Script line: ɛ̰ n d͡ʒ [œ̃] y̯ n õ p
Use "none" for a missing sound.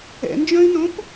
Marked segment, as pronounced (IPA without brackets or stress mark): œ̃